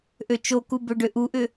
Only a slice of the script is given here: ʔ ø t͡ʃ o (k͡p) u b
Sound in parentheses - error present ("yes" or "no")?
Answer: yes